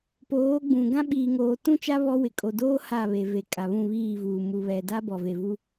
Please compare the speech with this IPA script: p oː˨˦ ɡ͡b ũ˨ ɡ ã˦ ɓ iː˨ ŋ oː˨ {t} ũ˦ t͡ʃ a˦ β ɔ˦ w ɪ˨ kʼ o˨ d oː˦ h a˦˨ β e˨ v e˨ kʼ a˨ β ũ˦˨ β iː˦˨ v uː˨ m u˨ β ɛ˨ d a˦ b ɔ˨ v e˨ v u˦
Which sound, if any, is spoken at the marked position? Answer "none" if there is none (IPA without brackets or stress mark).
t